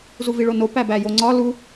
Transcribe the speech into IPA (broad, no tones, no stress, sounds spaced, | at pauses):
z u v i ɭ o n o p æ b æ j o ŋ͡ǀ ɒ l u